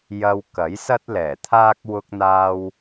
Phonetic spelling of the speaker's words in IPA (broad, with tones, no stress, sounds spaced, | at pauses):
j ɐ˧ w k ɐ˨˥ j s ɐ˥ t̚ l ɛː˨˩ t̪ʰ aː˥ k̚ w ʊ˧ k̚ n̪ aː˧ w